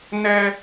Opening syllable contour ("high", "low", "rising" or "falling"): high